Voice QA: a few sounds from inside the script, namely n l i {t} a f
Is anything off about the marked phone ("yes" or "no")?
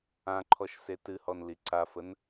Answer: yes